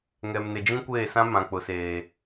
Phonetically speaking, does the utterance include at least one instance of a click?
no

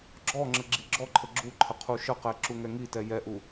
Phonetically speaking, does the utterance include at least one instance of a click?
yes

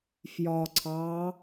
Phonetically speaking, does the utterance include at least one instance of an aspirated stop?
yes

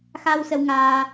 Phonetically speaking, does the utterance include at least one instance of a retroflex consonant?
no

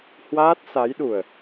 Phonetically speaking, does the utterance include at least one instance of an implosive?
yes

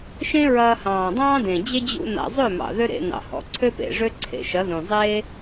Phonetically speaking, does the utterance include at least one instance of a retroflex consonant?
yes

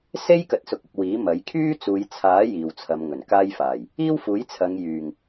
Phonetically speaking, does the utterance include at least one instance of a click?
no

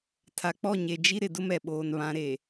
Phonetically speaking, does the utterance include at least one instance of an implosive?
yes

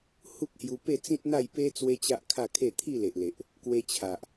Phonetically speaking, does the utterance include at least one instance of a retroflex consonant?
no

